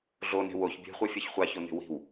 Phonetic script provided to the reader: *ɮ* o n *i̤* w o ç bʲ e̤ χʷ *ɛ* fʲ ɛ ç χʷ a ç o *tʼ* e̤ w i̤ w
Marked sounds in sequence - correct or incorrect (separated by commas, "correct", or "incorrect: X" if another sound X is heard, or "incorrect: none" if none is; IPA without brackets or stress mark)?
correct, incorrect: e̤, correct, incorrect: n̪